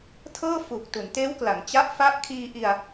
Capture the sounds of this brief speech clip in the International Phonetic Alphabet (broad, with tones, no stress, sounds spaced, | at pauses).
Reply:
tʰ ɤː˥˩ f u˨˩ k̚ t u˩˦ n t eː˦˥ w k l a˩˦ ŋ t͡ɕ a˦˥ ʔ f a˦˥ ʔ kʰ iː˧ ʔ i˧ a̯